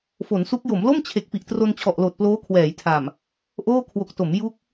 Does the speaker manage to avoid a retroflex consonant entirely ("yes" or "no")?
yes